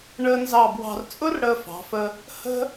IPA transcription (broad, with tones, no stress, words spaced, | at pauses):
ɳəː˧nzɑ˧˩ bwɑ̤˧r t͡sʼʊ˥rɽəː˧fɑ̤˩˧fə˧ | hə̤˥